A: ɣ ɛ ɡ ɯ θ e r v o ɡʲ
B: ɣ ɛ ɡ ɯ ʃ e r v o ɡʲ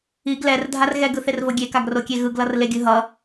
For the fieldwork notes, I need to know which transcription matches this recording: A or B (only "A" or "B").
A